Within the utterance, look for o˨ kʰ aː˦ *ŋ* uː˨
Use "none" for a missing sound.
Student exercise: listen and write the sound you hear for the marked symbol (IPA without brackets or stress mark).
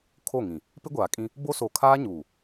ɲ